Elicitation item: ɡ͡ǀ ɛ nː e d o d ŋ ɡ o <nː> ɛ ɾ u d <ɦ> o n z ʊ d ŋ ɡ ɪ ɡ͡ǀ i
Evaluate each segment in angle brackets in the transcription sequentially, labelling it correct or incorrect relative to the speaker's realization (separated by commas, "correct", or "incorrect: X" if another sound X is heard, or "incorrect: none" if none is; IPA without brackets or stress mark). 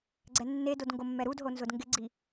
incorrect: mː, correct